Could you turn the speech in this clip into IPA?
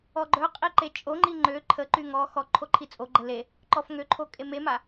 ɔ ɡ͡ǃ œ qʼ i ǃ e t͡ʃʼ o ŋ͡ǃ i ŋ͡ǃ ø ǃʰ ə ǃ y ŋ ɔ x ɔ ǃʰ o ǃʰ i t͡sʼ o ɡ͡ǃ ə l e | ǃ ɔ f ŋ ø ǃʰ o kʼ e m e m a

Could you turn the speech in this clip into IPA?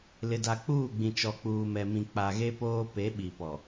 l ɪ˨ d a˨ k͡p uː˦˨ ɡ͡b ĩ˨ t͡ʃ ɔ˨ k͡p uː˨ m ɛ˨ m ĩ˨ k͡p a˨ ɣ e˦ p oː˦ p e˨˦ ɓ i˨ p ɔ˨

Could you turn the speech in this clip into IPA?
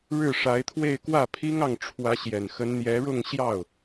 ɻ ɻ̩˥˩ ʂ a˧˥ ɪ̯ t̪ʰ w e˥˧ ɪ̯ k w ä˥˩ pʰ i˥ ŋ ɑ˥˩ ŋ ʈ͡ʂʰ w ä˧˥ ɕ j ɛ˨˩ n x ə˧˥ n n̪ j ɛ˧˥ ɻ ʊ˥˧ ŋ ɕ j ɑ˥˩ ʊ̯

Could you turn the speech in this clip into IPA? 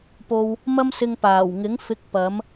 p o˧ w | m ɐ˥ m s ɪ˧ ŋ p aː˨˩ w ŋ ɪ˨˥ ŋ f ɪ˨˥ k̚ p ɐ˨˥ m

